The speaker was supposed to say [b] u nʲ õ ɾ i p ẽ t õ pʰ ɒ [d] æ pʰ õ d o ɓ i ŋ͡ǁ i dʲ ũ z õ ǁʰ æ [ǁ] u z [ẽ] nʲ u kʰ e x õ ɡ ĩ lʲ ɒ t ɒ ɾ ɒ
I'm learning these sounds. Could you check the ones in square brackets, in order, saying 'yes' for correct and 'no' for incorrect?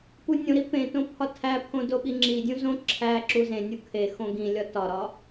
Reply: no, no, yes, yes

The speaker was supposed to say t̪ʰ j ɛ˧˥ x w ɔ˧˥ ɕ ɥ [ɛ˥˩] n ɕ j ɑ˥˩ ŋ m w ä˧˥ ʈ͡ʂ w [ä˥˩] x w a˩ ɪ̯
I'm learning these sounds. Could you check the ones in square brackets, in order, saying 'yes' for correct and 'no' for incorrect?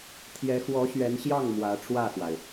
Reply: no, yes

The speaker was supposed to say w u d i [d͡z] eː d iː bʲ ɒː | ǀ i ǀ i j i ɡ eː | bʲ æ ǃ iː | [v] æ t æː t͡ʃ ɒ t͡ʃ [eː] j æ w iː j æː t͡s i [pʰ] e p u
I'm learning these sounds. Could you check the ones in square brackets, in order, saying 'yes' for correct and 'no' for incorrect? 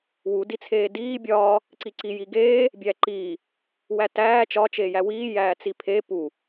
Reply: no, no, yes, yes

